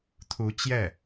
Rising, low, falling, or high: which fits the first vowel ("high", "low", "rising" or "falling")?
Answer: rising